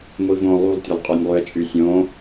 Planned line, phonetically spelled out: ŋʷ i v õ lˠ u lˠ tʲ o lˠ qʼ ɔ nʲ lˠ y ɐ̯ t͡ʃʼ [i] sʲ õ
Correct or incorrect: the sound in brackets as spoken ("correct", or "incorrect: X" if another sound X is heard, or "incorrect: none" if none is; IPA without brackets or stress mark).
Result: incorrect: y